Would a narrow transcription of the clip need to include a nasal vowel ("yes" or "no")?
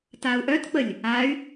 no